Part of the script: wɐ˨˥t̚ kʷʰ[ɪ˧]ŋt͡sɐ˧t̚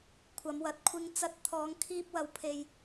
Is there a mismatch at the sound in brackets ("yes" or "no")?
no